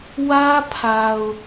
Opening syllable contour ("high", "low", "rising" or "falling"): high